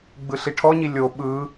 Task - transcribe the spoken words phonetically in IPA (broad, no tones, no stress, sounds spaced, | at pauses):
ɡ͡b ɯ ɬ i ʈʰ ɔ ɲ i lʲ o ɓ ɯ